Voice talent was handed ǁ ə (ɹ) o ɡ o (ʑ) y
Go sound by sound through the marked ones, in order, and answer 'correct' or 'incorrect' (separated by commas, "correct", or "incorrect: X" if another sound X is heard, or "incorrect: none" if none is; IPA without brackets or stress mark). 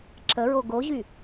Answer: correct, correct